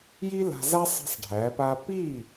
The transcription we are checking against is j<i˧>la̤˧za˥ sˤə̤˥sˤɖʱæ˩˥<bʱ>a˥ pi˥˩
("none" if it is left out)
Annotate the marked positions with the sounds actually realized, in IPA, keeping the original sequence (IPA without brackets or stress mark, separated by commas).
i˥, p